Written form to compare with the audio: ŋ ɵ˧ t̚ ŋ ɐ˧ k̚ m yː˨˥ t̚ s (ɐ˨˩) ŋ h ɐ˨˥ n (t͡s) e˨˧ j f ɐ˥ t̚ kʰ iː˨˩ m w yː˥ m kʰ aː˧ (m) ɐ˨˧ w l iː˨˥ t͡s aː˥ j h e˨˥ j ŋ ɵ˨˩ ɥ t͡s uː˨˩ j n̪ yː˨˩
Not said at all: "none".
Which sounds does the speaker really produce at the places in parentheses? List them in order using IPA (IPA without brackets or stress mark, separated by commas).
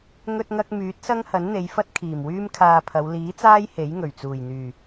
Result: ɐ˥, n̪, pʰ